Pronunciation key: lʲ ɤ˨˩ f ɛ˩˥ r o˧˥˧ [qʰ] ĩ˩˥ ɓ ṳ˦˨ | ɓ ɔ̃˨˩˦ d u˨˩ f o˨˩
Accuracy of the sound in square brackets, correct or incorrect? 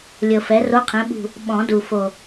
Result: correct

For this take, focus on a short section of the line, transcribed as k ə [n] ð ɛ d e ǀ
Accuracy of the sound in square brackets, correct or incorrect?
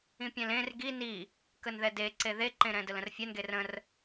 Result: correct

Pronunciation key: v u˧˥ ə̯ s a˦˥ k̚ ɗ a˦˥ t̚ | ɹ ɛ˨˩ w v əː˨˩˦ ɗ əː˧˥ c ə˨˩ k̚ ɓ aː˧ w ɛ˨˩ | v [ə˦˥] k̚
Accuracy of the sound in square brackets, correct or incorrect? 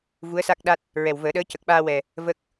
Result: correct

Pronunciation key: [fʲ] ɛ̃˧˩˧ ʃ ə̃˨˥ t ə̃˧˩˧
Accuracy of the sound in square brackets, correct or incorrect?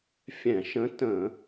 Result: correct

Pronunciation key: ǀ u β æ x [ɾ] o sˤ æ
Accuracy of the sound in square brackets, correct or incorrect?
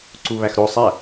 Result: correct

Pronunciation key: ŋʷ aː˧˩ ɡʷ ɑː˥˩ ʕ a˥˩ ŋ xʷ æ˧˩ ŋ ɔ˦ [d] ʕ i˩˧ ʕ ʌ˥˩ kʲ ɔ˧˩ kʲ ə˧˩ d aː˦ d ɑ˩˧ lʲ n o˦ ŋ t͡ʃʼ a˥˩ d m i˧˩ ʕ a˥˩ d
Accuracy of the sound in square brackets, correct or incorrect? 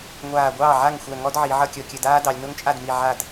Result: correct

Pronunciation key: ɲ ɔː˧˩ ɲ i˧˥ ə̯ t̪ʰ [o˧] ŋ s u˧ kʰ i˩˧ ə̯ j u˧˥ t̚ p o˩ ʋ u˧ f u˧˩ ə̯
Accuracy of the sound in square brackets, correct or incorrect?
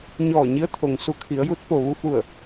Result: incorrect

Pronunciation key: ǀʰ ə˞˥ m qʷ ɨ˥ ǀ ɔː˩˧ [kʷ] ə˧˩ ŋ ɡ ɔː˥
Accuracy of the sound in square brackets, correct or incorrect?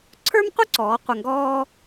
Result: incorrect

